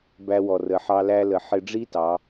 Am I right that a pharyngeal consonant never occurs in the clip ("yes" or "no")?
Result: no